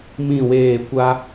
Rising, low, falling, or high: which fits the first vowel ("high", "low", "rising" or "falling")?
falling